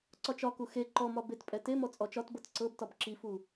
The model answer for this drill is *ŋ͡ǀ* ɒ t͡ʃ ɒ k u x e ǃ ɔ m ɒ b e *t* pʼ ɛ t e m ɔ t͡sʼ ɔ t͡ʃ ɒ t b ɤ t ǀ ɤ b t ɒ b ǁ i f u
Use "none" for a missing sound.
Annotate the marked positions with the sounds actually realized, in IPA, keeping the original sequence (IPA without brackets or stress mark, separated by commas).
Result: ǀ, t